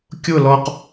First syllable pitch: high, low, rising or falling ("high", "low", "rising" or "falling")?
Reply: falling